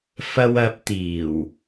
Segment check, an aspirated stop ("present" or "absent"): absent